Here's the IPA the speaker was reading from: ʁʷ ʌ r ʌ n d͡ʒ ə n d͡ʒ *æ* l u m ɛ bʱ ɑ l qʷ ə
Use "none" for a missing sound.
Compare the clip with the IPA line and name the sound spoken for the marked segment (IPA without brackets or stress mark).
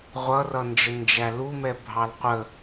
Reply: æ